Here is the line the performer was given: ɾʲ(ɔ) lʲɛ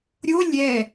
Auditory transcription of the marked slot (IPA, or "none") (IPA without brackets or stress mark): o